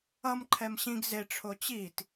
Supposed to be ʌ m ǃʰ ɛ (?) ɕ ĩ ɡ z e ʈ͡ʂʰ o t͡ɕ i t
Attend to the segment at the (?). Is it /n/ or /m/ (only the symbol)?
m